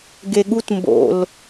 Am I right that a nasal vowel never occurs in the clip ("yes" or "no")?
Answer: yes